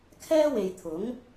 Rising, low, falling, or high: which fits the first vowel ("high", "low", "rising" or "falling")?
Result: high